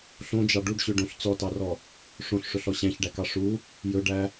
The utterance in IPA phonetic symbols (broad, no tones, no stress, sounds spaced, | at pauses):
ɬ õ d͡ʒ ɑ ɖ u ɖ ɕ ø ɖ õ ɬ t͡s ɔ t ɑ r ɔ | ʂ õ ɬ ʂ ɵ ɬ ɔ ɕ æ̃ ç ɖ æ k ɑ ʂ u | j ɵ ɖ æ